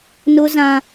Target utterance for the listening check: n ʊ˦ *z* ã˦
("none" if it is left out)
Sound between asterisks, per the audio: z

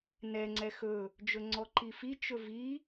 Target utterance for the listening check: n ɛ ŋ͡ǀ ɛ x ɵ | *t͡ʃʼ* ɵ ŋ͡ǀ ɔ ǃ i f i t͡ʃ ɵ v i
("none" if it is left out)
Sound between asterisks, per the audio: d͡ʒ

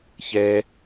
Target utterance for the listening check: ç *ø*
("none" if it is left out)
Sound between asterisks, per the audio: ɛ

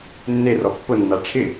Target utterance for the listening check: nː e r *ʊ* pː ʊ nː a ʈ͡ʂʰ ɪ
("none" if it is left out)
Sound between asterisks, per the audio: ɔ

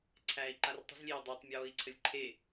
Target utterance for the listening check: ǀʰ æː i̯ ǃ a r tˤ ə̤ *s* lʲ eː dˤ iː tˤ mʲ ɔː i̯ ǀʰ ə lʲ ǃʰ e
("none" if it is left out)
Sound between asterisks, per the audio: z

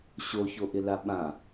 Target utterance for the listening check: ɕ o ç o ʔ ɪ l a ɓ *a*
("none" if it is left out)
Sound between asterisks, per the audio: ã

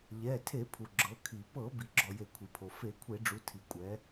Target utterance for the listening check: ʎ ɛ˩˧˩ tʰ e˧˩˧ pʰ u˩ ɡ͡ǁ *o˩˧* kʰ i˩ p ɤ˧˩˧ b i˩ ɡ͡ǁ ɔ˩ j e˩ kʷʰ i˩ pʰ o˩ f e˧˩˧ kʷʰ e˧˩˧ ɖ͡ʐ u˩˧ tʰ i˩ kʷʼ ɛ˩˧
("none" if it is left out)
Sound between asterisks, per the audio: ɤ˩˧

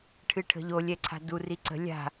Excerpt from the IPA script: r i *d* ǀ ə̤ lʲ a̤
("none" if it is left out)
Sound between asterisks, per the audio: none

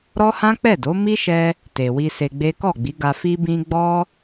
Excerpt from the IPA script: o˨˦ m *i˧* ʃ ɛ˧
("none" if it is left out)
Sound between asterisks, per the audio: i˦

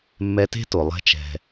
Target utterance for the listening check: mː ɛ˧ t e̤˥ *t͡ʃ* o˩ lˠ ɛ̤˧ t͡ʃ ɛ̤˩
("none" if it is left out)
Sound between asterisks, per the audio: t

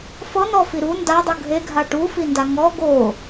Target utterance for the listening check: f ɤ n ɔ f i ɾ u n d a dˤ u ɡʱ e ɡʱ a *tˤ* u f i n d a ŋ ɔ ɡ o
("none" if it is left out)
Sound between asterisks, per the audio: ʈ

